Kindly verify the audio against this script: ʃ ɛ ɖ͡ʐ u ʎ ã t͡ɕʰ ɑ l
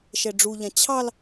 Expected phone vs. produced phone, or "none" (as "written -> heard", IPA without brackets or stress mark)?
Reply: none